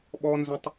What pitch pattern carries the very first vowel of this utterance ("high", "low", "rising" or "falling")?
high